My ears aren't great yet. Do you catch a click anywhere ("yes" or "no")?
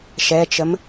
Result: no